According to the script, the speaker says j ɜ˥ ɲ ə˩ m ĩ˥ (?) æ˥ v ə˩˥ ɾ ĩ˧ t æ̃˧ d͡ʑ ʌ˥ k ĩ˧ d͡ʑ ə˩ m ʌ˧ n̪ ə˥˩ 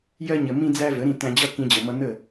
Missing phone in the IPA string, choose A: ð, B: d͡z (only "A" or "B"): B